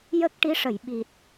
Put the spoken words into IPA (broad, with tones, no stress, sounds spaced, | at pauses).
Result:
j ə˦˥ k̚ ʈ i˧˥ ʂ ə˨˩˨ j ɓ i˨˩ t̚